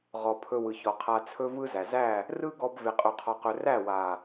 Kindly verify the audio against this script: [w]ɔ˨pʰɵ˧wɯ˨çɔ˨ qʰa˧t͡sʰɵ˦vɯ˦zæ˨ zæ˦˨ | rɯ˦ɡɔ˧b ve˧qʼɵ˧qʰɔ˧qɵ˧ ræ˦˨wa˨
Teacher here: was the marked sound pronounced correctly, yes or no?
no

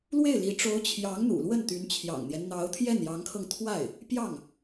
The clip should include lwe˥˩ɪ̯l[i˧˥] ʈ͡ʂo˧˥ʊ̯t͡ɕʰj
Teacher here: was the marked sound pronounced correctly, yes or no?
yes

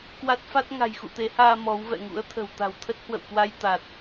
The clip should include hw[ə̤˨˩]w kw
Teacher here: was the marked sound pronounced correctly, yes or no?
no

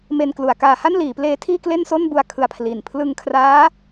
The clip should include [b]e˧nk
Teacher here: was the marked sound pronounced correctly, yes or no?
no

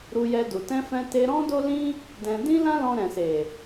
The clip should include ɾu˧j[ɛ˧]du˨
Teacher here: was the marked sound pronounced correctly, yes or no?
yes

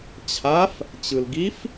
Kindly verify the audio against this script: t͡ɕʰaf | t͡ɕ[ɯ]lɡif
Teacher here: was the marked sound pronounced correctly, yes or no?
yes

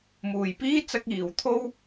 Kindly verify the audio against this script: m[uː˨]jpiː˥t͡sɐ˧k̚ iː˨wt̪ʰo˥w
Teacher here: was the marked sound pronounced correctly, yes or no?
yes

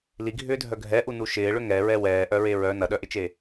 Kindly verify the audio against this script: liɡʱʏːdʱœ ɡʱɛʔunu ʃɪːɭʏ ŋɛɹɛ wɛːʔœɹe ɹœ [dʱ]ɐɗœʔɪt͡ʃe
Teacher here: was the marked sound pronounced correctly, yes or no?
no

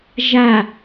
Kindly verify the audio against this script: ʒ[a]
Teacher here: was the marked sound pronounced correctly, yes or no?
yes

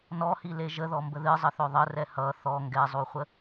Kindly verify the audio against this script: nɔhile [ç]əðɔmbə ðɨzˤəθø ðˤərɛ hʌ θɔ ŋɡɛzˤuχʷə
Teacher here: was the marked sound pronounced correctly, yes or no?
no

